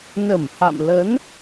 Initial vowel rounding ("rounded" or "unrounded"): unrounded